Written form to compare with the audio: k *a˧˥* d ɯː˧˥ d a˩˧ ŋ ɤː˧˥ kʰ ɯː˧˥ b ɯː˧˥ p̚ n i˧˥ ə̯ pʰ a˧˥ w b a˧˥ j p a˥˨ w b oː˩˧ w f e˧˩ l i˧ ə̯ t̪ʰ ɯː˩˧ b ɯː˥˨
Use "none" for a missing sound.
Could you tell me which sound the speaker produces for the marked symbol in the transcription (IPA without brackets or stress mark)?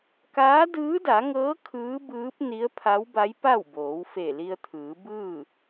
aː˧˥